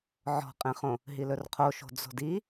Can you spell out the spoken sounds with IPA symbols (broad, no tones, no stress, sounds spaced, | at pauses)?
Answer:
ʕ ɔ̤ qʼ ẽ χ õ | ɦ i l ɵ r qʰ o ʃ o̤ d͡z o̤ d i